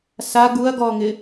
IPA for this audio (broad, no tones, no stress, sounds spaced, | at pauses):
s a ɡ u ɐ̯ ɡ ɔ ŋ ɪ